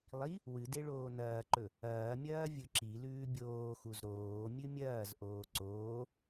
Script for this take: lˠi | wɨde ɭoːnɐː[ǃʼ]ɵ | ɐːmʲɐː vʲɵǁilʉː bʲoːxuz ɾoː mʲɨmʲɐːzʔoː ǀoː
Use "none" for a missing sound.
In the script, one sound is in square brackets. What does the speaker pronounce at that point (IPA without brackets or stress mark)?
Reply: ǃ